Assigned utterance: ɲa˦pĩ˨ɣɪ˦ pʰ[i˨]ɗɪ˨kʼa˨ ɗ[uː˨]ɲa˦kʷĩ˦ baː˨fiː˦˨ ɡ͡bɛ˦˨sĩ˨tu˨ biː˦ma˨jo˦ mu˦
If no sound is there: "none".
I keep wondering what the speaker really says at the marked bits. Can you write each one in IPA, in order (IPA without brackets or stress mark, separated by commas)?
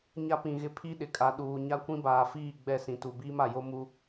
i˦, uː˨